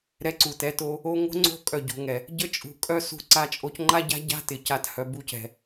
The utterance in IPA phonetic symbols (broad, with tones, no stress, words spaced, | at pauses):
ɾɛ˧ǀu˨tɛ˨˦to˧ | o˦ ŋo̤˦ŋ͡ǀo̤˦˨ kʼœ˦˨ɟo̤˧ŋɛ˨ | ɟə˦t͡ʃʼṳ˨ kʼœ˦sṳ˧ ǀa˧t͡ʃʼo˧cŋ͡ǃa˦ ɟa̤˦ɟa̤˦tɪ˨ ca˦thœ˧ bu˧cɛ̤˨